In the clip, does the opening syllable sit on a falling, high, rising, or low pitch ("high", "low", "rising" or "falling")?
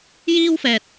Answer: high